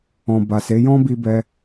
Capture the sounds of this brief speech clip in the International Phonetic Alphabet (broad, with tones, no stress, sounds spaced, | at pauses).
ɔ̃˨ b a˨ s e˨˦ j ɔ̃˦ b i˧ b ɛ˧